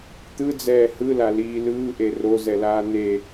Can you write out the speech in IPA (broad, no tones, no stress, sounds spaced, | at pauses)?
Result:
t̪ ɯ d͡z ɛː h ɯ l a l iː l ɯː ʔ e r o z ɛ l aː n̪ e